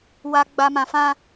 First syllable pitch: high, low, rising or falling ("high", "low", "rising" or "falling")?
low